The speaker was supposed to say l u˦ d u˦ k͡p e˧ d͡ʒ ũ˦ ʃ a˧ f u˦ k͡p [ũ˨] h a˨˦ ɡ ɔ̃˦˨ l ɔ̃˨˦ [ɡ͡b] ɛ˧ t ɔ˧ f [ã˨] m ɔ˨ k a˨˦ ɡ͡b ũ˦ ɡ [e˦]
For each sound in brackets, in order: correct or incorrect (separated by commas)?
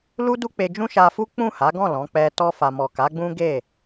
incorrect, incorrect, incorrect, incorrect